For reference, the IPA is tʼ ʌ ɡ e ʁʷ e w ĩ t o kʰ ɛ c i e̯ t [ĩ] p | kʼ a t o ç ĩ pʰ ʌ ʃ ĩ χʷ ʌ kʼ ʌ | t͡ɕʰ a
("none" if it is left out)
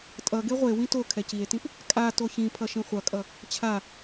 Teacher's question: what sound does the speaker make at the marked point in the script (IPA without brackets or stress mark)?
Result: ĩ